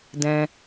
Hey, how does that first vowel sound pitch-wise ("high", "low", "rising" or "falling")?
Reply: high